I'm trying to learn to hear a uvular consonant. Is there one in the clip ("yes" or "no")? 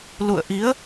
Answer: no